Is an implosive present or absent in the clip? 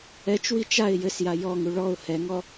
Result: absent